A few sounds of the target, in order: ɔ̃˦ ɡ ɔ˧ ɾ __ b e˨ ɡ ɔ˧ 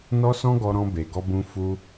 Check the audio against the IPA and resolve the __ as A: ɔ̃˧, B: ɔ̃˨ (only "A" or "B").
A